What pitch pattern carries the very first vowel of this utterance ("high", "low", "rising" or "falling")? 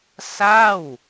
falling